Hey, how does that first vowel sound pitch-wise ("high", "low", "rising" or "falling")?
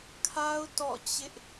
high